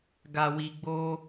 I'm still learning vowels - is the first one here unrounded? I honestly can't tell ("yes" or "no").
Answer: yes